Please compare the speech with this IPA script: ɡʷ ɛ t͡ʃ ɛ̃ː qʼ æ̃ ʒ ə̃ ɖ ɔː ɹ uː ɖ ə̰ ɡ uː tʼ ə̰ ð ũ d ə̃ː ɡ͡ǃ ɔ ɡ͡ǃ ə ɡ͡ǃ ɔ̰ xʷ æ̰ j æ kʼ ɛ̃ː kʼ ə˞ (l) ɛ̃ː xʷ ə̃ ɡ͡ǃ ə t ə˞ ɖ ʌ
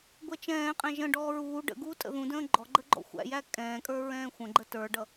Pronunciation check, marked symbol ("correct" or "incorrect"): incorrect